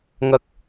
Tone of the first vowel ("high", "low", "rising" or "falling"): low